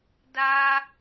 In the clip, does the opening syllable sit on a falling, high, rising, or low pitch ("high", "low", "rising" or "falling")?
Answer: high